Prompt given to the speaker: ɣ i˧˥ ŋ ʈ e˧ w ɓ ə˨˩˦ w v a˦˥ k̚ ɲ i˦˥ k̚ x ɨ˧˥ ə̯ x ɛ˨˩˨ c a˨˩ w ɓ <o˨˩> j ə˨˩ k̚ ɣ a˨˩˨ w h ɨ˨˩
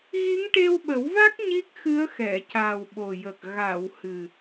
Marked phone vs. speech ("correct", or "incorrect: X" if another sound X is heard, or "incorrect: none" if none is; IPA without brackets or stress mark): correct